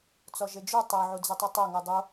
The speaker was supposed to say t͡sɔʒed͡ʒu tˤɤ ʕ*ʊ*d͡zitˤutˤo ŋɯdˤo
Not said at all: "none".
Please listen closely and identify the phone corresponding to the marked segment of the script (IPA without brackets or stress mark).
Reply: u